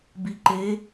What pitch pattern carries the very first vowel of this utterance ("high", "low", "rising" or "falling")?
low